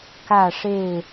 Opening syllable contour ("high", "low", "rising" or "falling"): falling